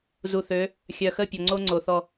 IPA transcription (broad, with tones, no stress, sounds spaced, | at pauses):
z u˨ θ ø˨˦ | xʲ œ˨ x ə˦˨ pʲ ɔ˨ ŋ͡ǀ o˦ ŋ͡ǀ o˨ θ ɔ˦